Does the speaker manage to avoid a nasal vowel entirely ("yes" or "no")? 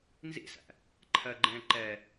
no